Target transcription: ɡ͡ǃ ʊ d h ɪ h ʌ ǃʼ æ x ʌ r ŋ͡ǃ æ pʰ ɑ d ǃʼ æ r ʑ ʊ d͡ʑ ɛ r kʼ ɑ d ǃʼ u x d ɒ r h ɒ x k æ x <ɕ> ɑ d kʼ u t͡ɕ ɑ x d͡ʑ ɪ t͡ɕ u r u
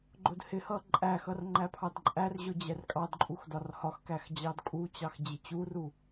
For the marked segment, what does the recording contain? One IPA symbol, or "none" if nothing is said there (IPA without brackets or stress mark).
d͡ʑ